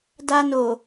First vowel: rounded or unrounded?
unrounded